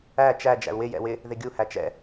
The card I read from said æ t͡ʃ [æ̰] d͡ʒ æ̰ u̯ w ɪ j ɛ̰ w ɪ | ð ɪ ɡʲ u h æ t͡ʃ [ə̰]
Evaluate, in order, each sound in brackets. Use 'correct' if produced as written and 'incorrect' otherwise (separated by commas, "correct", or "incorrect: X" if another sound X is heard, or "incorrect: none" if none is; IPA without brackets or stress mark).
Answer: incorrect: æ, incorrect: ɛ̰